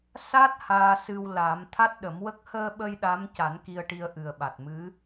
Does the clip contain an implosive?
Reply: yes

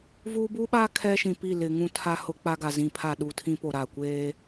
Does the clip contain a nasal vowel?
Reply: yes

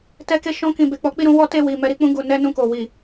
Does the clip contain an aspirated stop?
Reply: no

